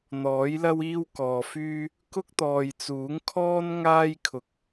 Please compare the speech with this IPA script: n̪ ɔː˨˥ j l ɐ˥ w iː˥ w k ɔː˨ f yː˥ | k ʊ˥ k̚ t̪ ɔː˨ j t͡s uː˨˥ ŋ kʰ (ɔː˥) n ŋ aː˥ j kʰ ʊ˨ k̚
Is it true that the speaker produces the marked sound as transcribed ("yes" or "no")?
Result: yes